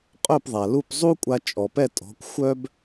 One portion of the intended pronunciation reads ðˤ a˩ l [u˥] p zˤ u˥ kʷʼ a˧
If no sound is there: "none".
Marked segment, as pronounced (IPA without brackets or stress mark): u˥˩